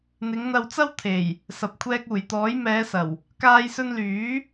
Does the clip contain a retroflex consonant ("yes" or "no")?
no